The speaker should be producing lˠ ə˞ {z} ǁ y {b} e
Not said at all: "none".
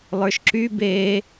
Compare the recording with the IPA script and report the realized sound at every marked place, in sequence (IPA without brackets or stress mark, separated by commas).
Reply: ʃ, b